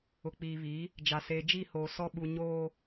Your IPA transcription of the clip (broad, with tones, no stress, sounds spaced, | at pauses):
ʊ˨ k͡p iː˨ β i˨˦ | d͡ʒ a˨ s eː˨ d͡ʒ i˦˨ h oː˨ s ɔ˦ ɓ u˨ ɲ oː˦